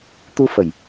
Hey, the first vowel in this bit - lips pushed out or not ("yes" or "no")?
yes